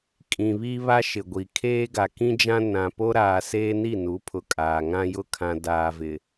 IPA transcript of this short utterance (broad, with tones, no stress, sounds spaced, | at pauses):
kʼ ĩ˨ β iː˦ β a˦ ʃ ɪ˨ ɡʷ i˨ kʰ eː˦ ɡ a˨ k ĩ˦ d͡ʒ ã˦ n ã˨ p o˦ ɾ aː˨ s eː˦ n i˦˨ n u˨˦ pʰ ʊ˨ kʼ aː˨ ŋ ã˦ j ʊ˦ kʰ ã˨ d aː˨ v ɪ˨